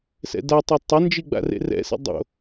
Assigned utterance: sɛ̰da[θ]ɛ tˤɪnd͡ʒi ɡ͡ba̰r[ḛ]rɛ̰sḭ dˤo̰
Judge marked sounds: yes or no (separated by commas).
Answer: no, yes